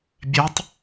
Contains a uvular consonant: no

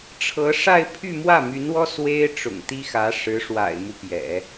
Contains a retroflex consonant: yes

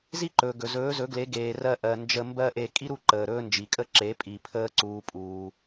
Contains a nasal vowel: no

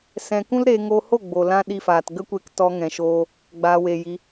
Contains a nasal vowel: yes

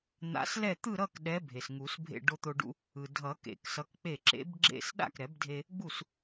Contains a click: yes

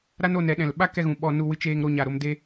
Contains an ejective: no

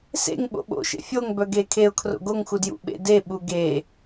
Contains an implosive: yes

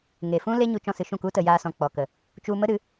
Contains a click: no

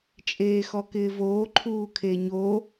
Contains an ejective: yes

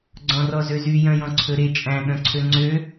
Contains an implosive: yes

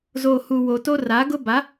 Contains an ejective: no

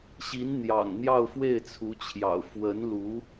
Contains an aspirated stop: yes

